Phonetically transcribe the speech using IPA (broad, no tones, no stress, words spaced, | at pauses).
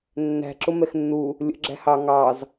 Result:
nːæ̤ǁʊ mɛxnːu | lʲə̰ ɡ͡ǁæ̤hɑ ŋɑz